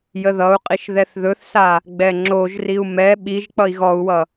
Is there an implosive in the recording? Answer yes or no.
yes